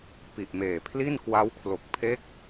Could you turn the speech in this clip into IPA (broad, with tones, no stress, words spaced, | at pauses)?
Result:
pi˨˩ʔmeː˨˩pʰli˥˩n kwa˦˥wkʰlo˨˩k̚ pʰe˦˥k̚